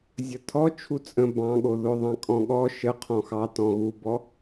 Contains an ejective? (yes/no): yes